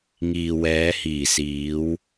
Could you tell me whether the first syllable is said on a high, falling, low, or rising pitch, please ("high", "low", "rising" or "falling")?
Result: low